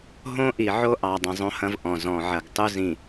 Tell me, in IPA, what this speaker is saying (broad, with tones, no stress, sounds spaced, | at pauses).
ɦ õ˦ ʔ i˨ ʕ o˦ ʔ ɑ˨ dˤ ĩ˨ zˤ õ˦ h ɐ̃˦ v ʔ ɔ̃˨ z ɔ̃˨ ʕ ɐ˨ ɡ tˤ u˦ z ĩ˨